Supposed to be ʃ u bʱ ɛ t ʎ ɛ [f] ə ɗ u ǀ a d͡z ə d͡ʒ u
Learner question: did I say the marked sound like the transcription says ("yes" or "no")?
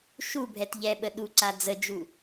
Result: no